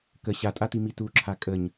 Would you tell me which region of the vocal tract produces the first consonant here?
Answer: velum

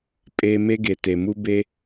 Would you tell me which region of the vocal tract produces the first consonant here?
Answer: lips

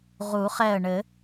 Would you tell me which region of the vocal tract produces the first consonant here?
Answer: uvula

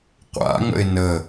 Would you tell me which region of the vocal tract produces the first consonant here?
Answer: uvula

